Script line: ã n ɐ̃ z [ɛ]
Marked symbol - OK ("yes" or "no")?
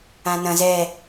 yes